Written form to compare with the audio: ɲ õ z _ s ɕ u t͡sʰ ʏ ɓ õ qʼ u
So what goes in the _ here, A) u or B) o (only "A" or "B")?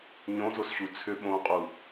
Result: B